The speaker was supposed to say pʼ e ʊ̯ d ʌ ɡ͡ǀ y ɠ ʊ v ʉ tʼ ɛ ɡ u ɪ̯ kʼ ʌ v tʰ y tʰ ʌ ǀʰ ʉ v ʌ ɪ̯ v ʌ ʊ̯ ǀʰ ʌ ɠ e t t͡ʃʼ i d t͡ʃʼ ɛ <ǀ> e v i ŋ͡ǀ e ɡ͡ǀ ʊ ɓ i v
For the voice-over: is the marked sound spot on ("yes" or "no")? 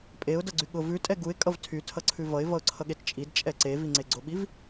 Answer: yes